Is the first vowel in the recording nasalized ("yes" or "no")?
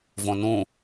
yes